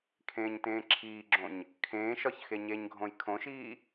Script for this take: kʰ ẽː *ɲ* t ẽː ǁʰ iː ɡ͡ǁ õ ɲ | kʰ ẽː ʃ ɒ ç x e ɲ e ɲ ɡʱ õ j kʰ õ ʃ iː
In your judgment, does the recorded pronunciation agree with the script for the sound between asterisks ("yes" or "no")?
yes